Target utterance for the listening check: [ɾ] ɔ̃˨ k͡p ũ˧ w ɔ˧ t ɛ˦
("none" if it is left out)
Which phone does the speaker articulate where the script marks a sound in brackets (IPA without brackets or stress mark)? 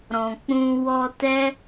ɾ